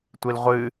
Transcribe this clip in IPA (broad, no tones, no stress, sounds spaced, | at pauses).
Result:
tʷ i l ʁʷ ɨ